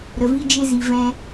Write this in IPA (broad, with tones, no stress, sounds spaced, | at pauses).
ɾ ə˨ v i˧ d͡ʒ e˧ z i˨ v ɛ̃˧